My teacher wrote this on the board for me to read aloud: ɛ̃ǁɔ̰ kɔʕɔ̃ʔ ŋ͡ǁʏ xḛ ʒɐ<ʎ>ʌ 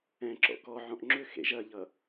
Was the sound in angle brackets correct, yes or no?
yes